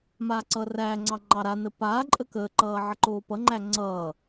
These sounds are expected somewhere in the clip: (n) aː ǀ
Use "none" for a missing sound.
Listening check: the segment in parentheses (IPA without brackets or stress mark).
m